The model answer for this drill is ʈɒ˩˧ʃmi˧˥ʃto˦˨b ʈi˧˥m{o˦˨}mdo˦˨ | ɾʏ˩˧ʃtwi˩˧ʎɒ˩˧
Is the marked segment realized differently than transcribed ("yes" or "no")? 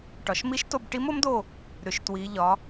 yes